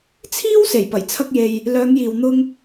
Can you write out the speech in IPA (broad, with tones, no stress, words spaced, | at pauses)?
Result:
t͡sʰiː˥w se˨˩jpɐ˨˩jt͡sʰɐ˧k̚je˨j | lœː˨˧ŋjiː˨wn̪ʊ˧ŋ